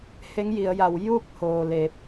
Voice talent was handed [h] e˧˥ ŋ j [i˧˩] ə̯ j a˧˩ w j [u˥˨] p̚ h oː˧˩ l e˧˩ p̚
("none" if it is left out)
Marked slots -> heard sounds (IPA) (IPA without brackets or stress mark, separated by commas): h, i˩˧, u˥˨